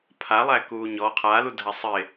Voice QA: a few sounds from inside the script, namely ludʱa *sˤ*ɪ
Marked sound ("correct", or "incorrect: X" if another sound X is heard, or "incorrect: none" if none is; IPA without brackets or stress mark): correct